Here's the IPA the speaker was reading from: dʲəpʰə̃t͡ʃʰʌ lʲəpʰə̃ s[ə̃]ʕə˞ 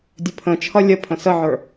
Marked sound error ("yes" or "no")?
yes